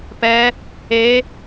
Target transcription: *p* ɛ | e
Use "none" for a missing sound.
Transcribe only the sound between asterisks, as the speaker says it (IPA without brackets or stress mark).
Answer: p